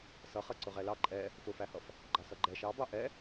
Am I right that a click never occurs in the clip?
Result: no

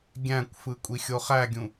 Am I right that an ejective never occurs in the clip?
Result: no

